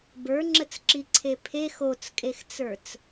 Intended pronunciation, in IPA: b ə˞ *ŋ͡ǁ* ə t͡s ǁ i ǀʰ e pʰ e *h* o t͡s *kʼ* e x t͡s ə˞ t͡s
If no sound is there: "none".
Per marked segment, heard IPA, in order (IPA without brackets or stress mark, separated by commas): ŋ͡ǁ, x, kʼ